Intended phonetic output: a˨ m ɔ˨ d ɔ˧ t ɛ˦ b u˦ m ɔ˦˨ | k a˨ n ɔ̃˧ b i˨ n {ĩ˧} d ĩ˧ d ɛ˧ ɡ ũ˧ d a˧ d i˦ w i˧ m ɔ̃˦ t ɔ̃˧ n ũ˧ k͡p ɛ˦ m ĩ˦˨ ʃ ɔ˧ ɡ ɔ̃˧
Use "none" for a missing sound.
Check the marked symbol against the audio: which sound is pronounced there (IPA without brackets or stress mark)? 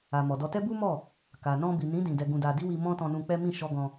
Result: ĩ˨˦